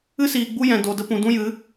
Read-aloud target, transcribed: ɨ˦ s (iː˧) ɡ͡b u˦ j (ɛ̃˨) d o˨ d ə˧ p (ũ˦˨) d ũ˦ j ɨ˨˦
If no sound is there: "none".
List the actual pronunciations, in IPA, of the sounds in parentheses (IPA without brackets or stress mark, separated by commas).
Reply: iː˨, ɛ̃˨, ũ˨